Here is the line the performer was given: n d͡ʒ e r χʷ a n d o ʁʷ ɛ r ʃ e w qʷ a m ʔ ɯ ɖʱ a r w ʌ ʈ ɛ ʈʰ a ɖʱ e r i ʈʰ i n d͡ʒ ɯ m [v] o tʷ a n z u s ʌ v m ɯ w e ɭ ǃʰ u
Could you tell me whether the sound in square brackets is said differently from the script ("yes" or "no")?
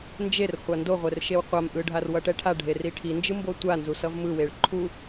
yes